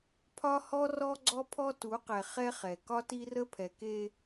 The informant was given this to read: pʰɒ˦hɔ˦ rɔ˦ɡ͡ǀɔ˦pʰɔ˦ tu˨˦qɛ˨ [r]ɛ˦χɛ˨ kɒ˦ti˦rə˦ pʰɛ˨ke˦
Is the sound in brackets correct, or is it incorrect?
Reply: incorrect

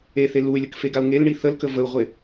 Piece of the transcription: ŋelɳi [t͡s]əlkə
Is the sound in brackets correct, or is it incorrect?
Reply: incorrect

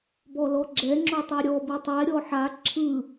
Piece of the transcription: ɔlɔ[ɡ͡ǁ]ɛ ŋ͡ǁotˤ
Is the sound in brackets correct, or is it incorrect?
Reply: correct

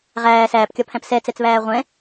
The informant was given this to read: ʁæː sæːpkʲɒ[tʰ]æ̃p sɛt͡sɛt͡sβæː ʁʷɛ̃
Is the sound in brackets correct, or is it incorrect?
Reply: incorrect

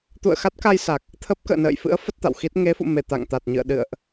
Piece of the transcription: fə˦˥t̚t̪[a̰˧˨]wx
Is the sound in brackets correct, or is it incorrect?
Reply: correct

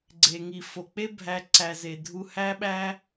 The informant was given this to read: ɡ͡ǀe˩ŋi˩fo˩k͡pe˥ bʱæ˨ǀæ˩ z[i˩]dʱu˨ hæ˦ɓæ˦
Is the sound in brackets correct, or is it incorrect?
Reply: incorrect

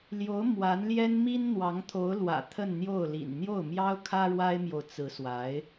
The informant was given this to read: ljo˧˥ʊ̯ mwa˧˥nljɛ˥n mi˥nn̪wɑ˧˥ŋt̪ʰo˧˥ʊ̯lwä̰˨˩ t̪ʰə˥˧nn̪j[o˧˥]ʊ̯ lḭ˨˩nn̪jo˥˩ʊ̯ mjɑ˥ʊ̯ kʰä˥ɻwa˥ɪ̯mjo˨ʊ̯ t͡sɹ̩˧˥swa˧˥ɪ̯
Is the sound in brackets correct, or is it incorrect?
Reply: incorrect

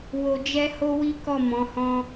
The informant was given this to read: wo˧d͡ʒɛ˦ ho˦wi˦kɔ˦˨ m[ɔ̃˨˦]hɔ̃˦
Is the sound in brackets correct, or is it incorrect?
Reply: correct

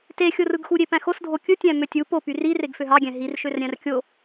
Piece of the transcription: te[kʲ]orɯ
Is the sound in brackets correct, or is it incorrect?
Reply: incorrect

